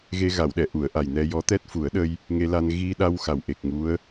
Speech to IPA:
ɣe˧ɣa˨˩˨wɗɛ˨˩˨ ʔu˨˩˨ə̯ʔa˨˩j nɛ˧ jɔ˧˥t̪ɛ˦˥t̚fu˨˩˦ə̯ɗə˧j | ŋe˧la˧n ɣi˧ɗa˧w xa˨˩wʔe˨˩k̚ ŋu˧˥ə̯

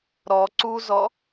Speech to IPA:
ɾɔ ǀuzɔ

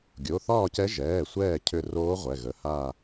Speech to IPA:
ɡʲo˩˧˩θɒː˥˨cɛ˧˥ ʒɛː˩˧˩sʷɛː˧˩ cʰʏ˧˩ roː˧˥ʁʷɛ˩˧˩ɣə˩˧˩ ha˧˩

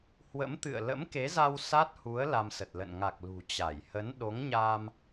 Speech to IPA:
hwə̰˧˥mt̪ɨ̰˧˨ə̯ lə̰˧˥mke˨˦za˧w sa˦˥t̚hu˨˦ə̯ la˧msə˨˩t̚lə̰˧˨n ŋa˨˩k̚ lṳ˨˩ t͡ɕa˧˩j hə˨˦n ɗo˨˦ŋɲaː˧m

